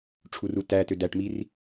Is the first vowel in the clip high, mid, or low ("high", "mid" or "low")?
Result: high